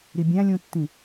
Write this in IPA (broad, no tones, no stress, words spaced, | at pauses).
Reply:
ɾibʲæ̃lʲũtːĩ